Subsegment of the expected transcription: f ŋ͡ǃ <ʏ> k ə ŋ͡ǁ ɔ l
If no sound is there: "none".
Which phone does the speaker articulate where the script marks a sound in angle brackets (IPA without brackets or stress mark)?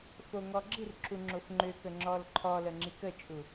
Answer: ʏ